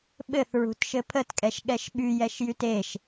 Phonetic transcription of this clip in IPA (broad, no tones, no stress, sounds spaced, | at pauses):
ɓ ɘ θ ɹ ṳ t ʃ ɘ pʰ ə t kʼ ɛ ʃ ɠ ɛ ʃ ɓ y j ɛ ʃ j y t e ʃ